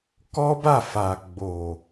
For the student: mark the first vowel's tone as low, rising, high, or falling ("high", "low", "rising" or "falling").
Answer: high